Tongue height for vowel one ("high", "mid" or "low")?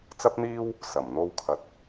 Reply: low